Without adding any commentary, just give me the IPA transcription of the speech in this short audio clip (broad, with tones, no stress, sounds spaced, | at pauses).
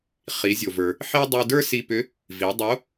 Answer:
χ i˩˧ zʲ o˩ v ə˞˩ | ħ i˥ dˤ o˧ d ə˞˥ s i˧ p ʏ˧˥ | v i˩˧ dˤ o˧˥